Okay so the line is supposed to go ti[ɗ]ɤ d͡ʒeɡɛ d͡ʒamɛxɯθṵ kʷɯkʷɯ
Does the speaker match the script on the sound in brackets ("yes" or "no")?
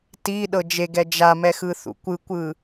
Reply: yes